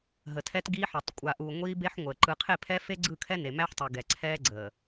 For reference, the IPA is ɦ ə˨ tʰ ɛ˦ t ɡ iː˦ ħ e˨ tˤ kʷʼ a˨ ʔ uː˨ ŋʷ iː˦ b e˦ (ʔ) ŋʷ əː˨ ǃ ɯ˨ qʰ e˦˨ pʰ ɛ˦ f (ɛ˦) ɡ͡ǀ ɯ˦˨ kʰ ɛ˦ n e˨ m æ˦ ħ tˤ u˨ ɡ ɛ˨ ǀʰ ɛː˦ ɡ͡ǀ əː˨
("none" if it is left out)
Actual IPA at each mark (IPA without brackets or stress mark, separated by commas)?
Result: ħ, e˦